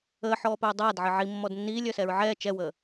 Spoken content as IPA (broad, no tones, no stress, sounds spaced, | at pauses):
əː ħ ɔː p œː dˤ aː d ʕ ə ʕ i mː ɔ d nː iː lʲ œ s ɛ ɹ ʕ ɛː t͡ʃ ɛ w əː